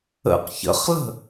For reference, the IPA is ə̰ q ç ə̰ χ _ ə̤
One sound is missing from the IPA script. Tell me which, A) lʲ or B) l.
B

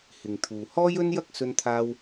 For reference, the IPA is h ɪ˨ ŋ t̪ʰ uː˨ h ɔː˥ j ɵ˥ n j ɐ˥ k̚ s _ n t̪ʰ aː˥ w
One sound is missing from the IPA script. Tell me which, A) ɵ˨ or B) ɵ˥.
B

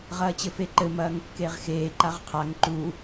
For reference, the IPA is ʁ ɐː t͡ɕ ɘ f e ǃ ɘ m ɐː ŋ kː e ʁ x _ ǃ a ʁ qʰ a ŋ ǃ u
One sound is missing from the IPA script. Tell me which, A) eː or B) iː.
A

